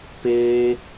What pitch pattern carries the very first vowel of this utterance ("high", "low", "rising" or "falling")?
high